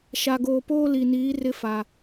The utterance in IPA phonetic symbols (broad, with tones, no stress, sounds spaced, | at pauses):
ʃ a˨ ɡ oː˨ p oː˦ l i˨ n iː˨˦ r ɪ˦ f a˨